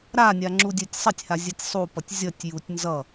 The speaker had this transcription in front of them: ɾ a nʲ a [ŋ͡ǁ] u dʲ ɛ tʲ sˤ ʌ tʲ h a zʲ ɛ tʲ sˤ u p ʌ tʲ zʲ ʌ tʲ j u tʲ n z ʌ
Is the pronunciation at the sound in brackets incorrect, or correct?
correct